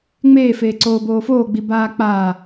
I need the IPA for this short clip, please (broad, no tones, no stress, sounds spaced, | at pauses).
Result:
ŋ͡m eː f eː ǀ oː b oː f oː ɡ͡b i b aː k͡p aː